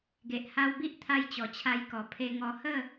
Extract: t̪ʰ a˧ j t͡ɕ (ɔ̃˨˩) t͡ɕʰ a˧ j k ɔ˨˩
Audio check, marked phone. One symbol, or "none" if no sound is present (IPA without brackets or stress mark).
ɔ˨˩